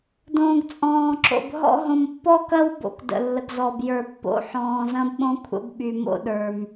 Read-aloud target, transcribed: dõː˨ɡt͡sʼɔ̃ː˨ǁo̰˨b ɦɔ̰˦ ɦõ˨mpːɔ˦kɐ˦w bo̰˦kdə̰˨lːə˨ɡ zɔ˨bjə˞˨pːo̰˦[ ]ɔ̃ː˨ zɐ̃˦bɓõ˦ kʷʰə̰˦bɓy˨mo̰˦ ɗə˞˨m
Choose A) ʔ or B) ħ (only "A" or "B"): B